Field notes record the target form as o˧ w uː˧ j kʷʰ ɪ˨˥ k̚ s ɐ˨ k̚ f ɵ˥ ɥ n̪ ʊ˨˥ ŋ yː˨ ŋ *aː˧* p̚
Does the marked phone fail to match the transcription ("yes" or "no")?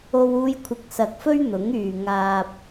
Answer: no